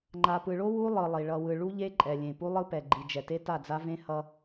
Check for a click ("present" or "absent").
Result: present